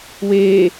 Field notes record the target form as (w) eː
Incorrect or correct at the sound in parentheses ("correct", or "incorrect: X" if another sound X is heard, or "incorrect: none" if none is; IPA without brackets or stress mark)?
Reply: correct